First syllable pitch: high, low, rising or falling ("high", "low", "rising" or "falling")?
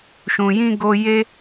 low